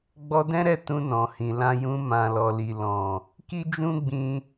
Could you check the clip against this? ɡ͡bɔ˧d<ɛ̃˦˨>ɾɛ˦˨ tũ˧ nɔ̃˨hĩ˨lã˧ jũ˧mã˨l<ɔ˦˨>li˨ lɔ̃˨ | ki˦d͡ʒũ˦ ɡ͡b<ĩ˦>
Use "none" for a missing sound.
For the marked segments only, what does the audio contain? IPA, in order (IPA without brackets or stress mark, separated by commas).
ɛ̃˦, ɔ˨, ĩ˦